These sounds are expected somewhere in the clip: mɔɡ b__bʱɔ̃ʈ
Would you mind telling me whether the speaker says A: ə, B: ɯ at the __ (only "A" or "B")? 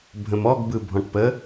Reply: B